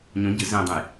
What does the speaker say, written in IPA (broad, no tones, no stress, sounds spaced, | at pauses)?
ɲ õ ɟ ɨ z ẽ dˤ ə̃ j